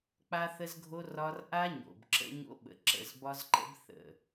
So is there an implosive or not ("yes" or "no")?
yes